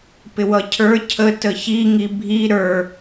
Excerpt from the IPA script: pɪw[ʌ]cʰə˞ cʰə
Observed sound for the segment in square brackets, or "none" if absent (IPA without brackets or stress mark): ʌ